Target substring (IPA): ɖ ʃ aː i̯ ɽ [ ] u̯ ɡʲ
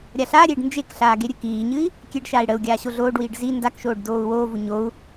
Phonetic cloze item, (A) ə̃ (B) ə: B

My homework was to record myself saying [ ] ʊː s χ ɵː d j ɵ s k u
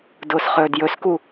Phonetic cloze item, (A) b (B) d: B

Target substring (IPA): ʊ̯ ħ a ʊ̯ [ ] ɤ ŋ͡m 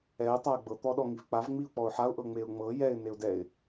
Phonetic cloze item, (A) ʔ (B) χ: A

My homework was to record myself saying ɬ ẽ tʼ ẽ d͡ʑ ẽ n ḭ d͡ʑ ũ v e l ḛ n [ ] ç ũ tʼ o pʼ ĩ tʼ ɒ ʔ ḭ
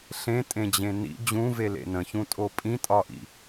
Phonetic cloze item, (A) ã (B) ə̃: B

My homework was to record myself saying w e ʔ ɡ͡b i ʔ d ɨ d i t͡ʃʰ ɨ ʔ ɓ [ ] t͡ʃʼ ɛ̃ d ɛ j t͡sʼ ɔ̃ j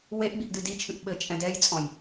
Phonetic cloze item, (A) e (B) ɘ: B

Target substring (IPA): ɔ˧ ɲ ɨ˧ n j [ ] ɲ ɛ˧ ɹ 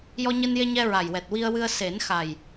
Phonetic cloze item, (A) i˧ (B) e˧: B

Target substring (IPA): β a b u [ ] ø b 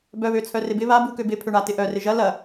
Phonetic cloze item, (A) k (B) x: A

